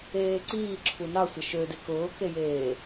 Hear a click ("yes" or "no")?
yes